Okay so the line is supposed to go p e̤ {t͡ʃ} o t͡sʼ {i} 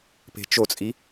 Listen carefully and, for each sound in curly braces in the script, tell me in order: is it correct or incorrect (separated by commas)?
correct, correct